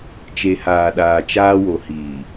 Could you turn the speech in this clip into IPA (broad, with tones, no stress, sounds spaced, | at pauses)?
t͡ʃ e˨ h aː˨ ɗ aː˨ t͡ʃ aː˦ w o˨ h iː˨